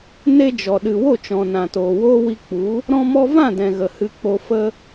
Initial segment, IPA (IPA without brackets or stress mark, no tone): n